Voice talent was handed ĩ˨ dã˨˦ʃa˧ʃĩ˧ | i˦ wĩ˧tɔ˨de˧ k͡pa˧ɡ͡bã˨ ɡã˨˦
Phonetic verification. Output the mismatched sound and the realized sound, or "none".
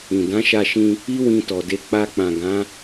ɡ͡b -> k͡p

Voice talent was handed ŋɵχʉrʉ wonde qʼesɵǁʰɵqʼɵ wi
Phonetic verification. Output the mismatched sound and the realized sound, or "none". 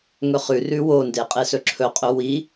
none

